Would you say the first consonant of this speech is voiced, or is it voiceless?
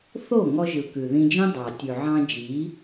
voiceless